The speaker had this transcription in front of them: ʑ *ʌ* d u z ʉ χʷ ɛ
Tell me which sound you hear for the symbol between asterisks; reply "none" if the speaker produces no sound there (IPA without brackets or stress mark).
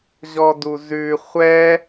ɔ